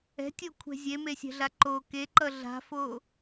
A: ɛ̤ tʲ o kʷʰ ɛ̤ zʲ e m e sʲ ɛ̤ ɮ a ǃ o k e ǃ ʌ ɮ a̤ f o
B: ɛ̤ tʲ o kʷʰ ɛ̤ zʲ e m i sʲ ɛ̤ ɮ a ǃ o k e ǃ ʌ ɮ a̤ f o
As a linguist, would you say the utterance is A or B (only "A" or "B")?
A